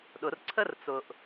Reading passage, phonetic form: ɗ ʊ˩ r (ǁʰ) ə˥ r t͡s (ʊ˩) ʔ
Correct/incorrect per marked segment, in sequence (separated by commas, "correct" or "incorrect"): incorrect, correct